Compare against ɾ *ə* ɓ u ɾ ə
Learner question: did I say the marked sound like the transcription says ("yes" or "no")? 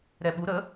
no